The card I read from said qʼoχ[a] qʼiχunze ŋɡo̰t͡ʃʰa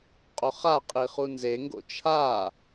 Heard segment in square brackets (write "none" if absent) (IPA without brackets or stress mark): a